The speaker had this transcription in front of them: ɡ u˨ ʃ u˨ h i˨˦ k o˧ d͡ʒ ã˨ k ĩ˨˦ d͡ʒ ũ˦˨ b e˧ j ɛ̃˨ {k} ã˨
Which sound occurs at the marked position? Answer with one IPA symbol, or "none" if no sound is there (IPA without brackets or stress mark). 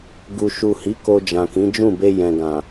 ɡ